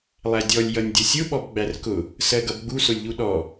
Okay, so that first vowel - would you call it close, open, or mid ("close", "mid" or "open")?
open